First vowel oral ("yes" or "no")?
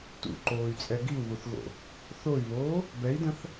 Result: yes